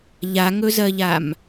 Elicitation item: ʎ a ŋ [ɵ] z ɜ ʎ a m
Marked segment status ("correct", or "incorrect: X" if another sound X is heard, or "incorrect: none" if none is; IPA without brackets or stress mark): correct